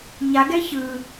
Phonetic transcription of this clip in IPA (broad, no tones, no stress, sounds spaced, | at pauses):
ɲ a ɡ ɛ ç ɯ